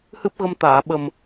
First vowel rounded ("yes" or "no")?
no